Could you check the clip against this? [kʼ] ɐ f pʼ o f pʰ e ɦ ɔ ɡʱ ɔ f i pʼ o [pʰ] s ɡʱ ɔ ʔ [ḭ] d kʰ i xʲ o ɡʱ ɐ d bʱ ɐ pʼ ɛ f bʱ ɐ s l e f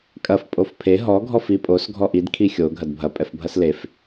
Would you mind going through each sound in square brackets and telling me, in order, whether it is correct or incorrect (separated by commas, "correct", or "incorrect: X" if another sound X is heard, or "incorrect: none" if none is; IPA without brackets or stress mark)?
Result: correct, incorrect: none, incorrect: i